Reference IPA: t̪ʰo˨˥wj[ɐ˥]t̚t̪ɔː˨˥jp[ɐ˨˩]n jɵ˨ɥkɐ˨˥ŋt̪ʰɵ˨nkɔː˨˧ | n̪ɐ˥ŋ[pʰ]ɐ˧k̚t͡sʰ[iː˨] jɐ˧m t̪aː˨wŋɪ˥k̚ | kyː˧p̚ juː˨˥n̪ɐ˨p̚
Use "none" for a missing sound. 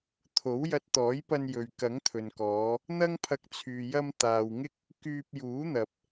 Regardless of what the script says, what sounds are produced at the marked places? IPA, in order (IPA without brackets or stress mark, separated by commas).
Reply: ɐ˧, ɐ˧, pʰ, yː˨